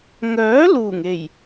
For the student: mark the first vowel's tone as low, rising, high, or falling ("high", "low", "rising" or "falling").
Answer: rising